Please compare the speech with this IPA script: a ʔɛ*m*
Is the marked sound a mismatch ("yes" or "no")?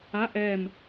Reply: no